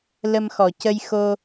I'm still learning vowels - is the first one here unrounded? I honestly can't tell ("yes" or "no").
yes